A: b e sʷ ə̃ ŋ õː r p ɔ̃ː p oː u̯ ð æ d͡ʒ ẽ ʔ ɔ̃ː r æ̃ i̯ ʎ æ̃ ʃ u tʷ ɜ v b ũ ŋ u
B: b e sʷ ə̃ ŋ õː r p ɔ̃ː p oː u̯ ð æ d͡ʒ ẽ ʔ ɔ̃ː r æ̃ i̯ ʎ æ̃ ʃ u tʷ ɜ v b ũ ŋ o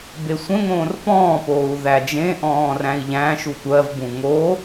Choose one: B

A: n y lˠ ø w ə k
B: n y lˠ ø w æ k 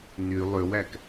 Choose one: B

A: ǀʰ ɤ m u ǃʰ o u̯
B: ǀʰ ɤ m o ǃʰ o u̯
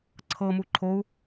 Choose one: A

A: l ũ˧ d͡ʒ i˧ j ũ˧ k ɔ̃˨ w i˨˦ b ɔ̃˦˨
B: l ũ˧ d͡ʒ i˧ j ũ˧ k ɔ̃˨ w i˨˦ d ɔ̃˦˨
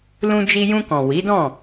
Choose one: B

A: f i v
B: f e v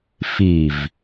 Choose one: A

